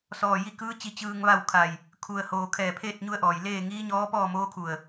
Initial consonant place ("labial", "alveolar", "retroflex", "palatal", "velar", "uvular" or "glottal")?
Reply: alveolar